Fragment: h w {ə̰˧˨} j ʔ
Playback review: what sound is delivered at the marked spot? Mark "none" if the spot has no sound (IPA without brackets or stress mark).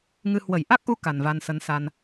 ə˧˩